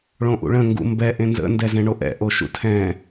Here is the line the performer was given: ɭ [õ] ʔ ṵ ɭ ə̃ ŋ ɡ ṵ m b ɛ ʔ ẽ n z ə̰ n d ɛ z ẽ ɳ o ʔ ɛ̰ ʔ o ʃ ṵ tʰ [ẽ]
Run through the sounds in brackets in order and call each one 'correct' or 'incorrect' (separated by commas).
correct, incorrect